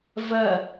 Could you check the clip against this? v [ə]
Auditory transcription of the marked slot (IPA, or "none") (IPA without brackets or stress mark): ɐ